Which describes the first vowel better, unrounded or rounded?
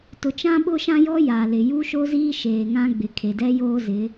rounded